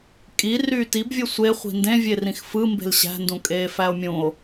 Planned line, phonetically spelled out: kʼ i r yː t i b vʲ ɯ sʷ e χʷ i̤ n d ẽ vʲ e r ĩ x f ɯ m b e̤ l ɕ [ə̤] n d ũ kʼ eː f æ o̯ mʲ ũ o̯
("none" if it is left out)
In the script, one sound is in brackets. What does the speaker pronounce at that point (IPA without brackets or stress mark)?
æ̤